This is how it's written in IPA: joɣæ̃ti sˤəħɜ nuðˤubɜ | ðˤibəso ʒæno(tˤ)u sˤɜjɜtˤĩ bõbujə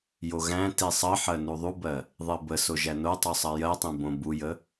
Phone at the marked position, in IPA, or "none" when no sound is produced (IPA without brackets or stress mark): tˤ